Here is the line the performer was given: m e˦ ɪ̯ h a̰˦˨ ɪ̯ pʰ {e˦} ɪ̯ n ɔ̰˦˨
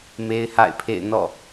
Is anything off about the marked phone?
yes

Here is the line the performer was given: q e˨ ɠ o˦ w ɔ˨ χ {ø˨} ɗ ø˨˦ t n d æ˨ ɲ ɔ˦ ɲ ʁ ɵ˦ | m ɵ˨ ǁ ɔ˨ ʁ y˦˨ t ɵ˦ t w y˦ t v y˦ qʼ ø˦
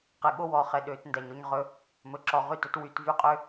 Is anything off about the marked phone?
yes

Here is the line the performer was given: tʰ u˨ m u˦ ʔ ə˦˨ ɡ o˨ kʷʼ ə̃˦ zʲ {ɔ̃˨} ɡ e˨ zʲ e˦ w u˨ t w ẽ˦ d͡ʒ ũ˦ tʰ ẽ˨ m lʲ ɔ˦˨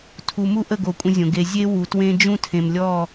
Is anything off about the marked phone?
yes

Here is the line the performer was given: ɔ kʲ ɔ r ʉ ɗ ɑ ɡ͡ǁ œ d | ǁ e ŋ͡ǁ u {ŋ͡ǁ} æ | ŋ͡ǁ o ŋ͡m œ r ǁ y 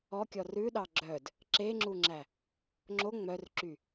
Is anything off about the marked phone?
no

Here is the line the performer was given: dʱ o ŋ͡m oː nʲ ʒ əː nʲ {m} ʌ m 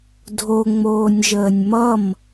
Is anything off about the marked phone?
no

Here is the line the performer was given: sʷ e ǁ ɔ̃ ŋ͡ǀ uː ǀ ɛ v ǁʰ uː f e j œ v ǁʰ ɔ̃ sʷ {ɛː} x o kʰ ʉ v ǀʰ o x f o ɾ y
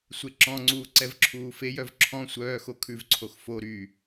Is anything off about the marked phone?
yes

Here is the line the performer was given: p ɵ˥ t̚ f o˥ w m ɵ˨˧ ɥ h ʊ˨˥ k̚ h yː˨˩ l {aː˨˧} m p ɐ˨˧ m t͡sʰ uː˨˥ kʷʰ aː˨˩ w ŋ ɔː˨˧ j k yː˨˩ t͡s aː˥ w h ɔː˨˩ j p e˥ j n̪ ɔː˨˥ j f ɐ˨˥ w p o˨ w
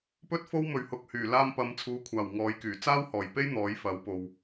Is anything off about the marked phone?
yes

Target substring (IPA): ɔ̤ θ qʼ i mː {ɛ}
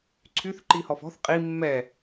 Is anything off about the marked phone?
no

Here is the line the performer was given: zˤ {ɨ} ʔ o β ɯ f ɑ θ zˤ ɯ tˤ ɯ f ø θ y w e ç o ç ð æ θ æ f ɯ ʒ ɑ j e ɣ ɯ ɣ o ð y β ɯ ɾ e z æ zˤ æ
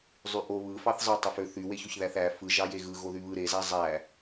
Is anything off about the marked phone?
yes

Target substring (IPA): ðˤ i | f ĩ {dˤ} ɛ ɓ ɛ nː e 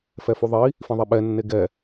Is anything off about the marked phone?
yes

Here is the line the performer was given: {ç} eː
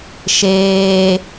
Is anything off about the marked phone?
yes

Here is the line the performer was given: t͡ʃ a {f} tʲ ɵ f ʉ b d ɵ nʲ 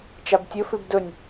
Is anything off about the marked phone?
yes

